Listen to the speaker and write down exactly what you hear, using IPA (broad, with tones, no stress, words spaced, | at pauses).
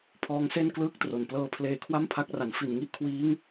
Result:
pʰɔː˦˥ŋse˥˩nklɯː˥˩k̚tro˨˩n plɤː˧pʰleː˧kʰwa˥˩mpʰa˦˥k̚ ra˩˦nfi˨˩nŋi˥˩ʔkʰwiː˦˥ŋ